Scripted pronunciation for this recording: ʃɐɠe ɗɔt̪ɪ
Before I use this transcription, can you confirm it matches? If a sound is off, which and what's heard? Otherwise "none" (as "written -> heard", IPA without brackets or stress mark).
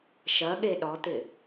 none